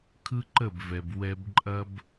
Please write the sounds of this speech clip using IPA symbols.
kʰ ɯ˦ ǃ ə˦˨ b v ɛ˨ b w ɛ˧ b ǃʼ ɐ˦ b

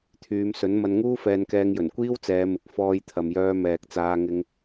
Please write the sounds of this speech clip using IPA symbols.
t̪ʰ yː˨˧ m s ɵ˨˥ n m ɐ˧ n ŋ uː˥ f ɛː˧ n k ɛː˧ ŋ j ɵ˨˩ n kʷ iː˥ w t͡s ɛː˨˧ m ɪ˨ k̚ f ɔː˧ j t̪ʰ ɐ˨ m j œː˧ m ɛː˨ k̚ t͡s aː˧ ŋ ɪ˧ ŋ

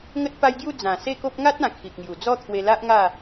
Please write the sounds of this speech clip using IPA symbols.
ŋ ə˦ t̚ p a˦ j ɡ j u˥˧ d͡z ã˨˩ s e˥˧ k o˦ p̚ ŋ a˦ t̚ ã˨˩ kʰ i˨ k̚ ŋ j u˨˩ d͡z ɔ˥˧ t̪ʰ w e˧ l a˦ ʔ ŋ a˥˧

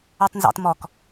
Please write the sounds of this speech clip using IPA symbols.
u tˤ n z ɑ̰ t m ɔ k

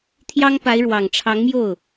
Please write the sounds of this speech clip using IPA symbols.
t̪ʰ j ɑ˥ ŋ p a˧˥ ɪ̯ ɻ w ɑ˨˩ ŋ ʈ͡ʂʰ ɑ˧˥ ŋ m j o˥˩ ʊ̯

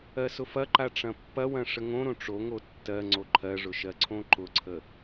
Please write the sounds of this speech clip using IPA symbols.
ɜ s ʊ f ɐ ǃ a ʈ͡ʂ ɐ̃ pː ɐ w ɐ̃ ʂ ə ŋ õ ɾ õ ʈ͡ʂ o ŋ o tː ɜ ŋ͡ǀ o ǃʰ ɜ ʐ ʊ ʃ ɜ ǀʰ õ ǃ ʊ ǀʰ ə

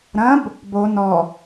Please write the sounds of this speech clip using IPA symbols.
ɾ ɐ̃ b | b o n ɔ

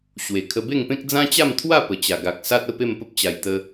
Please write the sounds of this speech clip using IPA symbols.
ɕ w e˨˩ kʰ ə˧ b e˥˧ ŋ p ẽ˦ k̚ d͡z ã˦ t͡ɕ a˥˧ m t̪ʰ w a˥˧ p ə˨˩ t͡ɕ a˨˩ ɡ a˨ k̚ s a˦ t̚ ə˦ p e˥˧ m p ə˦ p̚ t͡ɕ a˨˩ j t̪ ə˧

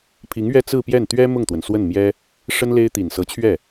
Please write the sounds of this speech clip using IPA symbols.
pʰ i˧˥ ŋ ɥ ɛ˥ t͡s ɹ̩˥˧ p j ɛ˥˩ n t̪ ɥ ɛ˥ m ʊ˥˩ ŋ t̪ w ə˩ n s w ə˥˩ n m j ɛ˥ | ʂ ə˥ n l e˥ ɪ̯ t̪ i˨˩ n s ɤ˧˥ t͡ɕʰ ɥ ɛ˥˩

